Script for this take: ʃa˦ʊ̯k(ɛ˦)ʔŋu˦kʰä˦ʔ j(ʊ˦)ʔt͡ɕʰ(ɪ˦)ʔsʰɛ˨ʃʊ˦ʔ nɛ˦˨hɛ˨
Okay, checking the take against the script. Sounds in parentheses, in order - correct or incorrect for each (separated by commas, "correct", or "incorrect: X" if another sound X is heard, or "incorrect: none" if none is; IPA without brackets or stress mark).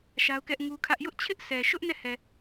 correct, correct, correct